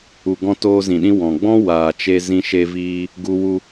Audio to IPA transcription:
u˨ ɡ ɔ̃˧ t oː˧ z ĩ˨ ɗ ĩ˧ w ɔ̃˨ ɡ͡b ɔ̃˦ w aː˨ t͡ʃ e˧ z ĩ˧ ʃ e˧ v iː˧ | ɡ u˧ w u˧

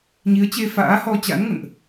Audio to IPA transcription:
ɲ i˨˦ ə̯ t͡ɕ e˧ f a̰ː˧˥ h ɔ˧ t͡ɕ a̰˧˥ n ŋ ə̰˧˨ n ʔ

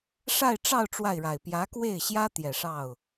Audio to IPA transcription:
ʂ a˥˧ ɪ̯ ʈ͡ʂ ɑ˥˧ ʊ̯ ʈ͡ʂ w a˥˩ ɪ̯ ɻ a˨˩ ɪ̯ p j ä˧˥ k w e˥˩ ɪ̯ ɕ j ä˥ t̪ j ɛ˨˩ ʂ ɑ˥˩ ʊ̯

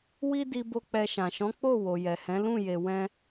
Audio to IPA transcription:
w i˦ d i˧ b o˧ k͡p ɛ˧ ʃ ã˨ ʃ ɔ̃˨˦ k͡p o˦˨ w o˨ j ɛ˨ h ɛ̃˨˦ l ũ˦˨ j e˨ w ɛ̃˧

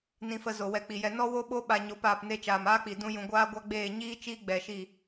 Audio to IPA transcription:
n ĩ˧ f ə˧ z o˨ w ɛ˧ k͡p i˨ j ɛ˧ n ɔ˦ w o˦ ɓ o˦ ɓ a˧ ɲ o˨˦ p aː˨ p n e˧ t͡ʃ aː˨ m aː˦ k͡p i˨ d ũ˦ j ũ˧ ɡʷ aː˦ ɡʷ a˦ ɡ͡b eː˦˨ ɲ iː˦ t͡ʃ iː˦ ɡ͡b ɛ˨ ʃ i˦˨

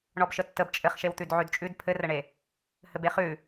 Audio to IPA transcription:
ɳ ɔ b ʃ ə tː ə b t͡ʃʼ ɘ χ ʃ e w t̪ ʉ d ʕ ʉ d t͡ʃʼ ʉ d pʰ ɘ r ə ɳ e | h ɘ b e χ ʉ

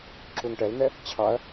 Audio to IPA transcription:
ǁ u ŋ ʈ ɛ l n̪ ɛ | t͡ɕʰ ɑ ɐ̯

